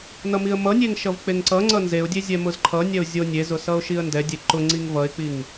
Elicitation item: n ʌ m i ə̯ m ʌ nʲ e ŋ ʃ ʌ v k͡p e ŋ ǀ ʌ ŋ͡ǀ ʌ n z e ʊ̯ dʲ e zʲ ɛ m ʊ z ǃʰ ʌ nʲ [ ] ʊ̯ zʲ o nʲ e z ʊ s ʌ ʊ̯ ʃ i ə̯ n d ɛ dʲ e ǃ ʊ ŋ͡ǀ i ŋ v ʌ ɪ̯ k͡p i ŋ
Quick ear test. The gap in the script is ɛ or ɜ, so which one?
ɛ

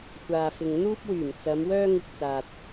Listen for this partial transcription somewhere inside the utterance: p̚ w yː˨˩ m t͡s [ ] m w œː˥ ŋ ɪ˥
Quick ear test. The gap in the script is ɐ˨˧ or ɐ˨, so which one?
ɐ˨˧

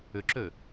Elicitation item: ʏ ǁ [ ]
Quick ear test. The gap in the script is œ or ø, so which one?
ø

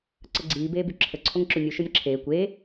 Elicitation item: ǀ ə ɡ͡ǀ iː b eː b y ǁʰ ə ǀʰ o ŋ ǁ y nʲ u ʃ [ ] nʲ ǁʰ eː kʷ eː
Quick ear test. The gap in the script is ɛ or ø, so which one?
ø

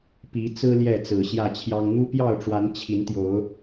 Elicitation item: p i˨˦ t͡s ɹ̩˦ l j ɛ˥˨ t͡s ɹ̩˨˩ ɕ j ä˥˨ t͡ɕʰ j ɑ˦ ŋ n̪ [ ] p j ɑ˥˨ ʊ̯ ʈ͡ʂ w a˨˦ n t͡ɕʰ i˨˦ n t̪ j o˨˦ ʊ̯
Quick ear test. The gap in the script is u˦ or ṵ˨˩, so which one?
u˦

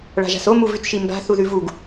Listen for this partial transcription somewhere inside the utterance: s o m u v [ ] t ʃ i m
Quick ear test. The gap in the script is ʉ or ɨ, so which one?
ʉ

